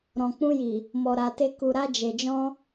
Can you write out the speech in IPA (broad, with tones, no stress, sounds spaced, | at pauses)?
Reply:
ɾ ɔ̃˨ k͡p ũ˧ j i˨ | m ɔ˨ ɾ a˨ t e˧ k u˨ ɾ a˧ d͡ʒ e˨ d͡ʒ ɔ̃˧